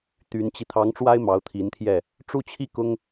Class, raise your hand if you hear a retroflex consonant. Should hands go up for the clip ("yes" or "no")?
yes